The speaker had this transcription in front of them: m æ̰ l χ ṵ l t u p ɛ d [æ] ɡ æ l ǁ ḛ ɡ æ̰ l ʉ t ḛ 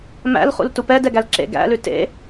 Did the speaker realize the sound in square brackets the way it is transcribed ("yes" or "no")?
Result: no